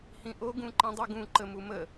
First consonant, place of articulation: glottal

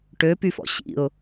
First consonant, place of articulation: retroflex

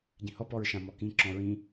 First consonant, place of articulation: palatal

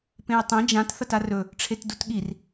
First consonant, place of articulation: labial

